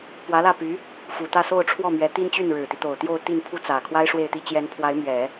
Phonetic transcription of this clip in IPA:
p w ä˧˥ l ä˥˩ p y˧˥ | f u˨˩ t̪ ä˥˧ s o˥˧ ʊ̯ ʈ͡ʂʰ w ɔ˥˩ m ɥ ɛ˧˥ t̪ i˥ n t͡ɕ y˥˩ n ɻ ɻ̩˨˩ t̪ i˦ t̪ o˨˩ ʊ̯ t̪ j o˥˧ ʊ̯ t̪ i˥˧ n pʰ u˥˩ t͡s ä˨˩ kʰ w a˥ ɪ̯ ʂ w e˥˩ ɪ̯ t̪ i˥ t͡ɕ j ɛ˧˥ n pʰ w a˧˥ ɪ̯ m ɥ ɛ˨˩˦

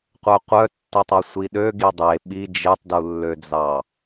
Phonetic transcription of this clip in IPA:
qʷ œ qʷ œ tː ɛ tˤ o sʷ i ɗ ø ɡ i dˤ e ɓ i d͡ʒ e tˤ d u lː ø d͡z ɑ

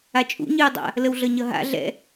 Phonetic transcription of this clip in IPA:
a t͡ʃʼ ṵ ɲ ɨː dˤ a̰ | l ə w ɮ ʌ ɲ ʌ ɦ a̰ ɮ ɛ̰

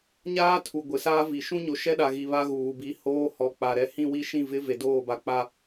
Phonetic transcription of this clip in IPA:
ɲ aː˦ tʰ u˨ ɡʷ ɪ˨ s aː˦ v i˨ ʃ ũ˦ ɲ o˨ ʃ ɛ˦ ɗ a˨ ɣ i˨ β a˦ ɣ uː˨ b i˨ h oː˦ h ɔ˨ k͡p a˨ ɾ ɛ˦ h ĩ˦˨ w i˦ ʃ ĩ˦˨ v ɪ˦ v e˨ d oː˦˨ b a˨ k͡p a˦

